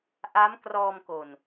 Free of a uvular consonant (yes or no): yes